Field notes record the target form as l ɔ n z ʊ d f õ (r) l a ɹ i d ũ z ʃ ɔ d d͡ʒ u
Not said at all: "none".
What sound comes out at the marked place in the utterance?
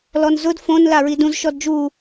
n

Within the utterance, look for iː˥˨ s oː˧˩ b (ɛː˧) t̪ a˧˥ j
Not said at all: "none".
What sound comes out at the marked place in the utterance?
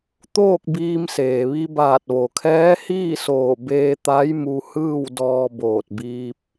eː˧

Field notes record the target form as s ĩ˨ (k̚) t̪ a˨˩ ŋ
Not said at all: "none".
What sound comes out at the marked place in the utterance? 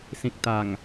k̚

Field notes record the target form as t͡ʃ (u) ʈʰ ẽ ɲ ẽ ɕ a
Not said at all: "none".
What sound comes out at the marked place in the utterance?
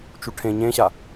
u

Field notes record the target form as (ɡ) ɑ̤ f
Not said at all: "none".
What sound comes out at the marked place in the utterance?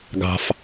ɡ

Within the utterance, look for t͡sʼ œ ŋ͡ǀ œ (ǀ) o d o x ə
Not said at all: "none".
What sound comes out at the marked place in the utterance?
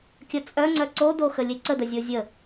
ǀ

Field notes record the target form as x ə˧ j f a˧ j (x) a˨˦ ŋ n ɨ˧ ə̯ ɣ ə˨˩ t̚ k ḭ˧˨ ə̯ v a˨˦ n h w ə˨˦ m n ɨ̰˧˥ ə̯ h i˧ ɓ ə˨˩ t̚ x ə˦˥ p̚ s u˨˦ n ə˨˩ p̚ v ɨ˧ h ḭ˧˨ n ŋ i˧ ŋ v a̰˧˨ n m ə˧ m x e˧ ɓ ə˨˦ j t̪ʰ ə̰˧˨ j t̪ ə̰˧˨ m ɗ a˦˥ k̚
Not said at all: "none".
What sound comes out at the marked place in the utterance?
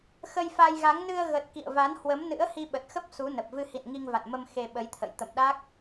ɣ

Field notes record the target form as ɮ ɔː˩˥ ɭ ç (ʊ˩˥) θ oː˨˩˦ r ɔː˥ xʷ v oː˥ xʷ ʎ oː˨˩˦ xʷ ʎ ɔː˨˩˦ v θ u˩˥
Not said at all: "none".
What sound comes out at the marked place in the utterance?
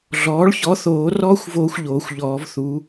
ɔ˩˥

